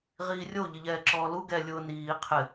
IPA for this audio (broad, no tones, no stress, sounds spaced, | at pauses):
ʁ iː rʲ o ʎ ɪ ʎ ɛː ǁ ɔː l u ɡ ɛ lʲ ʊː n iː qʰ ɪ